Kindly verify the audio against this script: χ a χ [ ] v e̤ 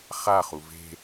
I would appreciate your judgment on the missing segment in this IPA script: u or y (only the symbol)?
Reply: u